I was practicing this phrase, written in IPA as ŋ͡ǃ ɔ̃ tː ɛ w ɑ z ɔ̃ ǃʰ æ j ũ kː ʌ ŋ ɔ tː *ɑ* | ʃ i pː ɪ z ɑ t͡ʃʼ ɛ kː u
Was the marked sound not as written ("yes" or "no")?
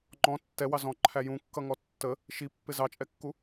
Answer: yes